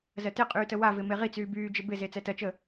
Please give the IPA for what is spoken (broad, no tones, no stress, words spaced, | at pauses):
zɜtɪqʼyː təwavɪ meʁit͡syː byːd͡ʒɪ bɪze t͡sɛtɜt͡ʃəː